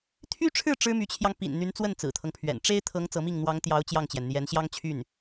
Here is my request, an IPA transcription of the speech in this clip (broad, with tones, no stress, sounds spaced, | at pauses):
t̪ʰ y˥ ʈ͡ʂʰ ɻ̩˥˩ ʈ͡ʂ ɻ̩˥ m y˧˥ t͡ɕʰ j ɑ˧ ŋ p ḭ˨˩ n n̪ y˧˥ n t͡s w ə˥˩ n t͡s ɹ̩˨˩ t̪ʰ ɤ˦ ŋ pʰ ɥ ɛ̰˨˩ n ʈ͡ʂ e˥ ɪ̯ t̪ʰ ɤ˧˥ ŋ t͡s ɤ˧˥ m i˥˩ ŋ n̪ w ɑ˧˥ ŋ t̪ j ɑ˧˥ ʊ̯ t͡ɕ j ɑ˥˩ ŋ t͡ɕ j ɛ˩ n n̪ j ɛ˧˥ n ɕ j ɑ˥ ŋ t͡ɕʰ y˥˩ n